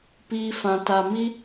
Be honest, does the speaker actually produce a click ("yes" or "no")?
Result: no